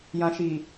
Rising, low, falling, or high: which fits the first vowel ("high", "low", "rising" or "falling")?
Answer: low